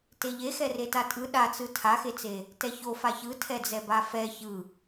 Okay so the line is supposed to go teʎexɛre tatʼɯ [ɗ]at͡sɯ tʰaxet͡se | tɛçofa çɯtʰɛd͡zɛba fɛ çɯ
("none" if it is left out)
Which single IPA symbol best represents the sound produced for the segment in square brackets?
ɗ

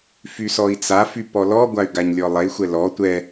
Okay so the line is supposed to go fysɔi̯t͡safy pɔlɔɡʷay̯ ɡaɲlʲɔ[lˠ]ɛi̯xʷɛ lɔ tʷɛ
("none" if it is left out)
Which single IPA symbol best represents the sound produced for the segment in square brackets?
lˠ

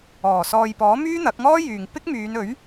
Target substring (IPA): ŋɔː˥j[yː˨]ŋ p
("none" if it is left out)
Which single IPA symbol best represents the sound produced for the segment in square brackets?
yː˨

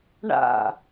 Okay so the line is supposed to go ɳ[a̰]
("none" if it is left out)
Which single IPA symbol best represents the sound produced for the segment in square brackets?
a̰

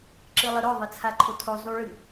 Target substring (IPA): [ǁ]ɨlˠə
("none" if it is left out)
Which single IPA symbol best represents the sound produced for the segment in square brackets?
ǁ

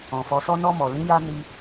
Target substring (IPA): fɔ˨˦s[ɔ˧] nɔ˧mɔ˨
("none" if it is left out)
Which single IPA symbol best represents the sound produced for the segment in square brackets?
ɔ˦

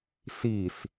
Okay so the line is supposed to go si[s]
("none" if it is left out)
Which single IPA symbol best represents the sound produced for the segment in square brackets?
s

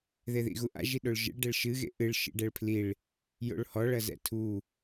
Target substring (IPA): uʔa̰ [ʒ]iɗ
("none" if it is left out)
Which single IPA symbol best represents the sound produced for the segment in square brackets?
ʒ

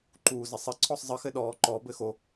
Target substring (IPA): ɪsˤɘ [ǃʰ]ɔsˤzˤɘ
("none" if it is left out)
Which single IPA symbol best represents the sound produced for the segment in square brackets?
ǀʰ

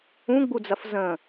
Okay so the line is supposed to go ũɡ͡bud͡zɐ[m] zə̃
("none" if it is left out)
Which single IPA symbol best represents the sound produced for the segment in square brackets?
f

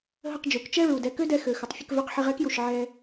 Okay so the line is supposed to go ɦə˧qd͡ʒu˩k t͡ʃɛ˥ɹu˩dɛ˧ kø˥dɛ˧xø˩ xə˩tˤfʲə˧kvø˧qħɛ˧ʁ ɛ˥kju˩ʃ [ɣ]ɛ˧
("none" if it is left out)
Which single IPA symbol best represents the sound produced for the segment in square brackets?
ʕ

